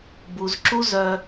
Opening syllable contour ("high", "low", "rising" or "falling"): low